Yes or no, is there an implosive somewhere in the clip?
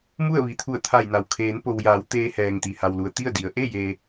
no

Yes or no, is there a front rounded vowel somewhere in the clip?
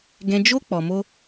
no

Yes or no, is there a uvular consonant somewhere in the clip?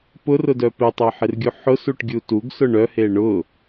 no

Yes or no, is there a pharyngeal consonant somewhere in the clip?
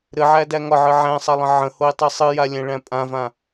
yes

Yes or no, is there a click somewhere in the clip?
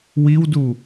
no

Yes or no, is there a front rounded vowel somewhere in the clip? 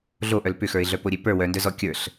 yes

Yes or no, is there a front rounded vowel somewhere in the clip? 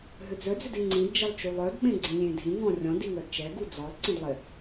yes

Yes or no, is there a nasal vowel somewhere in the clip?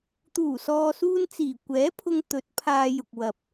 no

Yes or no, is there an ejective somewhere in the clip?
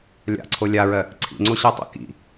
no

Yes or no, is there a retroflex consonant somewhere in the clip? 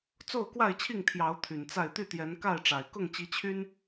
yes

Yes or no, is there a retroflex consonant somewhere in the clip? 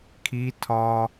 no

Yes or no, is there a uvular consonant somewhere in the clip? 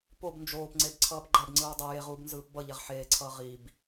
yes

